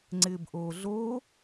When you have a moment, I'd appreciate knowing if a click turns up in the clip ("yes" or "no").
yes